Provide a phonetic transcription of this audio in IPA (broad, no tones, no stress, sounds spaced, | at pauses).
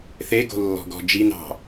θ e ɡ o̤ lː ɔ̤ ɡ ɔ̤ d͡ʒ i n ɑ̤